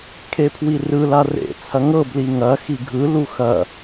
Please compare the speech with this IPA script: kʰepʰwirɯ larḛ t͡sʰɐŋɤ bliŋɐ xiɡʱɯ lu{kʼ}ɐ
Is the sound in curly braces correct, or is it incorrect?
incorrect